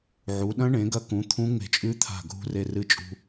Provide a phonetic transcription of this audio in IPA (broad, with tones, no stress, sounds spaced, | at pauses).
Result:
ʕ u˩˧ ɗ ɐ̃˦˥ ɳ ẽ˩˧ ɡ ɐ˧ k ũ˩˧ t̪ʰ ũ˦˥ ŋ͡m e̤˧ t͡ʃʼ ʉ˦˥ t̪ʰ a̤˧˩ ɡʱ ṳ˧ r e˧ r ɨ˧ t͡ʃʼ ṳ˧